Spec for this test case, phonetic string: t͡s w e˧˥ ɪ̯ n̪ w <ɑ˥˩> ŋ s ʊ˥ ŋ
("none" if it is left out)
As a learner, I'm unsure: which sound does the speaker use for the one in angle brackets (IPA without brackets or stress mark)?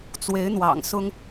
ɑ̰˨˩